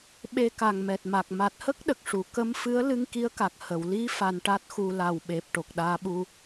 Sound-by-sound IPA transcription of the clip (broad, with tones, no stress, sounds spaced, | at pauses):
ɓ e˧ k a˨˩ ŋ m ɛ˨˩ t̚ m a˨˩ k̚ m a˨˩ t̚ h ə˦˥ k̚ ɗ ə˨˩ k̚ ʂ u˨˩˦ k ə˧˥ m f ɨ˧˥ ə̯ l ɨ˧ ŋ k i˧˥ ə̯ k a˨˩ k̚ h ə˨˩˨ w l i˧˥ f a˧ n ʈ a˦˥ t̚ x u˧ l a˨˩ w ɓ e˨˩ p̚ ʈ o˨˩ k̚ ɗ aː˧ ɓ u˧